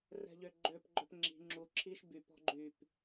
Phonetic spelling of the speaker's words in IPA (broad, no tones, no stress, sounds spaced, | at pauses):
r ɛ̤ ʎ ø ɡ͡ǃ ø p ɡ͡ǃ œ p ŋ͡ǁ i̤ ŋ͡ǁ u ǁʰ i ʃ b y p ɔ̤ ɡ͡ǃ y p